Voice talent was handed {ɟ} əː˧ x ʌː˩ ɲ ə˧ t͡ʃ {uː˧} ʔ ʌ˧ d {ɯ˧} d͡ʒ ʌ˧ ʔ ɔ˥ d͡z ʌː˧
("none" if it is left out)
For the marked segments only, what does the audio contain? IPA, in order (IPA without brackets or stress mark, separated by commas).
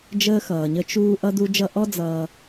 d͡ʒ, uː˧, u˧